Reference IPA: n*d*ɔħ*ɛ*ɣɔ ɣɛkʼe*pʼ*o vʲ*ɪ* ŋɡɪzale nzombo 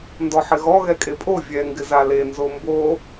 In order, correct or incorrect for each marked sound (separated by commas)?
correct, incorrect, correct, incorrect